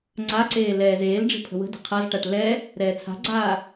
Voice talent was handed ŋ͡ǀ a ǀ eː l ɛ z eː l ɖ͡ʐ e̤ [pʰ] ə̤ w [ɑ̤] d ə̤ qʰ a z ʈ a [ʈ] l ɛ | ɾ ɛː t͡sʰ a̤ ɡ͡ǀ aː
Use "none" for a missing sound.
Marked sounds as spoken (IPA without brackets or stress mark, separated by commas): pʰ, ə̤, ʈ